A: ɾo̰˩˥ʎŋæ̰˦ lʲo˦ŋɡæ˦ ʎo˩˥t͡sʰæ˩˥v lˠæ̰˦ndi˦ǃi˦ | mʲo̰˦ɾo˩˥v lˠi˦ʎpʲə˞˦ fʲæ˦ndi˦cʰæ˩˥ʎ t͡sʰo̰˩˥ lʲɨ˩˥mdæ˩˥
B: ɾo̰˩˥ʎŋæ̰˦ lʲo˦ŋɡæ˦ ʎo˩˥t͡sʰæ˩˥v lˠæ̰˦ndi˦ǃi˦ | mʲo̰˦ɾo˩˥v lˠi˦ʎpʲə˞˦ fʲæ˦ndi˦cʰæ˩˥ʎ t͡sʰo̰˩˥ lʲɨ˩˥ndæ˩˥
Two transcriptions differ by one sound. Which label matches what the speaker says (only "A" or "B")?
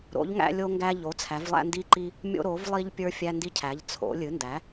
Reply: B